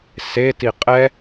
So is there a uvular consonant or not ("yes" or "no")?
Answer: yes